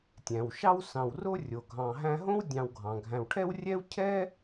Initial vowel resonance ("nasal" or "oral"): nasal